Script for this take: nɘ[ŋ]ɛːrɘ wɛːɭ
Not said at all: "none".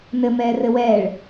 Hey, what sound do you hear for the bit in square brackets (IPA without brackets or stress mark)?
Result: m